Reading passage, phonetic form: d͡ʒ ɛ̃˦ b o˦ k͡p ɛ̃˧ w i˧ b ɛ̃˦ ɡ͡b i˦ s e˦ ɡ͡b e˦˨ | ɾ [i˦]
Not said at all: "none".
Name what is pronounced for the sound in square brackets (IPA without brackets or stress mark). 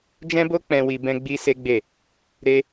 e˦